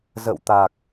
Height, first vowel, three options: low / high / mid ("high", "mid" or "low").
mid